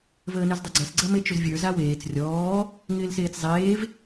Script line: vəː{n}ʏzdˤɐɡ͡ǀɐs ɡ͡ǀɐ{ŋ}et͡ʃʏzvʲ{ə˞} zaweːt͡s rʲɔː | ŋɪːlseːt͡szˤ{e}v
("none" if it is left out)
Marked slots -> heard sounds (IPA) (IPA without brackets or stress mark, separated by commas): n, m, ə˞, eː